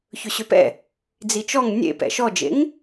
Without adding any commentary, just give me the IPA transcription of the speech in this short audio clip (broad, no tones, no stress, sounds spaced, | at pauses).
ç ɵ ɕ ø p ɛ̰ | d͡z i t͡ʃ ɔ ŋ nʲ ḛ p ɛ̰ ʃ ɔ d͡ʒ ḛ ŋ